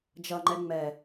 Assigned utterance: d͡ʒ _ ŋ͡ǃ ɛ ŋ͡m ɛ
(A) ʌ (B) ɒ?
A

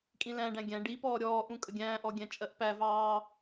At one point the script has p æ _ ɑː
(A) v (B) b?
A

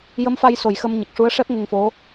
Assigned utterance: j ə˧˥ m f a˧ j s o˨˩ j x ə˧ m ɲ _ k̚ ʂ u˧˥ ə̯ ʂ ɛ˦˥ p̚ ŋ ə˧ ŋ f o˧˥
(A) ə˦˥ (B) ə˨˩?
B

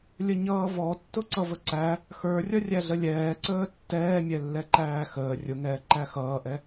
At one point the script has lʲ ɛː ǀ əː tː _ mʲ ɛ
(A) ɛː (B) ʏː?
A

